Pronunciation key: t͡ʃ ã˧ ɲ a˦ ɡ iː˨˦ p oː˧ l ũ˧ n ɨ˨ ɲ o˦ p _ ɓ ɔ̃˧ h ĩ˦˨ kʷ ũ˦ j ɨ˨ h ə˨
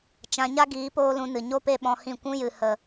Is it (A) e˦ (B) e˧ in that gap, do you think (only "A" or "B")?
A